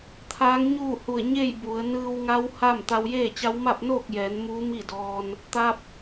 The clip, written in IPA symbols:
t̪ʰ aː˧˥ ŋ ɲ uː˥˨ h u˧˩ ə̯ ɲ e˥˨ j b u˩˧ ə̯ n ɯː˧ w ŋ a˧˥ w h a˥˨ m t̪ a˧ w j eː˥˨ t͡ɕ a˧˥ w m a˥˨ p̚ n oː˥˨ k̚ j ɛː˩˧ n m uː˧˥ m i˥˨ d ɔː˧ n | t̪ a˧ p̚

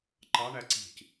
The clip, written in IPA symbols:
ǃ ɑ ɳ æ ǀ i̤ c

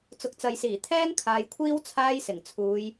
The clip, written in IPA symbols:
t͡s ʊ˨ k̚ t͡s ɐ˨ j s iː˨˩ t̪ʰ ɛː˥ ŋ kʰ aː˨ j kʷʰ iː˥ w t͡sʰ aː˥ j s ɪ˨˩ ŋ t͡sʰ uː˨˧ j

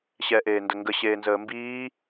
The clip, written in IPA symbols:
ɕ ɛː ʔ eː n d ə ŋ ɡ ə ɕ eː n z əː m b iː

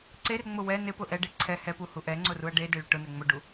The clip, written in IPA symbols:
ǀ e r ŋ͡m ʊ w ɛ n ɪ p ʊ ʔ ɛ ɖ e ǀʰ ɛ h ɛ p u h u ʔ ɛ ŋ͡ǀ ʊ r u ɐ̯ ɖ e d e ɭ ɪ ʈ ʊ n ɛ ŋ͡m ʊ ɖ u

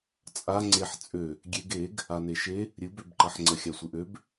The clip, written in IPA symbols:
t͡sʼ a ŋ͡ǀ e ħ t͡sʼ ø | ɡʲ e ɡ e ɡ | a n e ʃ e | ɾʲ ɨ b ø b ǃ ɐ ħ ŋ͡ǀ ə xʲ a sʷ ɨ ʔ ø b

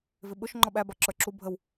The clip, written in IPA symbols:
v ɪ ɓ ʊ ʃ ŋ͡ǃ ɔ ɓ æ b ɑ ǁ ə˞ ǁ u bʱ ə w

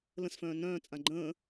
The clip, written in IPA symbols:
l ə̃ s f œ̃ː n œ̃ː t͡sʼ ã ɡ͡ǃ ə̃ː

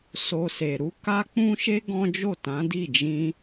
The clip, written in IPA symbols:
s o˧ s e˨ ɾ u˨˦ k a˦ k͡p ũ˦ ʃ e˦ ɡ ɔ̃˦ d͡ʒ o˦˨ t ã˨˦ d i˦˨ d͡ʒ ĩ˧

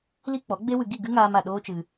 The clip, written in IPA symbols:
l i˦ k͡p ɔ˨˦ ɡ͡b e˦ w ɨ˧ ɡ i˦˨ ɡ ɨ˦ ŋ aː˧ m a˨ ɗ oː˦ t͡ʃ ɨ˧

